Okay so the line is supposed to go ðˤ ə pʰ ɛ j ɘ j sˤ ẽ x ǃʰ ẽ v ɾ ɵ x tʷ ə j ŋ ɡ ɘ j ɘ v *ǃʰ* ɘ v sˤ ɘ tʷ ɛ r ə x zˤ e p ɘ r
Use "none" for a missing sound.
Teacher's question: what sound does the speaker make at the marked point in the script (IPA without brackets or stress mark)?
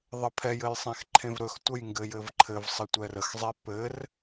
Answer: ǃʰ